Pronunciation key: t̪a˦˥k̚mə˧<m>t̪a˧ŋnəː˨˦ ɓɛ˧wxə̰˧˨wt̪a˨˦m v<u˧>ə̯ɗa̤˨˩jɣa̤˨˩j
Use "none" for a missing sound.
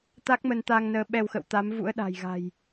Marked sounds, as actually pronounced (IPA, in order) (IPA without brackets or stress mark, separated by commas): n, ṵ˧˥